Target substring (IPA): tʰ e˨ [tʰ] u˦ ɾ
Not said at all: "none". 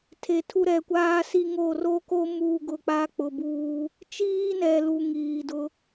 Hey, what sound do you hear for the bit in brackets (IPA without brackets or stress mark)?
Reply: tʰ